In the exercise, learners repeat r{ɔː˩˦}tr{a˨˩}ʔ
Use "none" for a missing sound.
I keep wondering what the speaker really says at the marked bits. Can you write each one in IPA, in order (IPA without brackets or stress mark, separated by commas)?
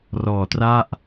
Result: ɔː˩˦, a˥˩